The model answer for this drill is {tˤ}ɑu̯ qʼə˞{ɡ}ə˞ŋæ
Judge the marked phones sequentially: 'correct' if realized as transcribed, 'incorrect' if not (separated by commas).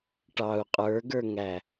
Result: incorrect, correct